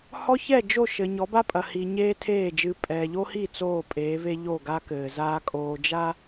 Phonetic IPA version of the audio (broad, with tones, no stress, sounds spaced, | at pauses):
h ɔ˦ ç ɛ˦˨ d͡ʒ o˦˨ ʃ ɘ˨ ɲ ɔ˨˦ b a˦ pʼ ɐ˨ h i˨ ɲ eː˦ tʰ eː˦˨ d͡ʒ ɨ˨ pʼ ɛː˨ ʎ o˦ h i˦˨ t͡s oː˦˨ pʼ eː˨˦ v e˦ ʎ o˦˨ ɡ a˦ k ɘː˨ z aː˦ kʼ oː˨ d͡ʒ a˦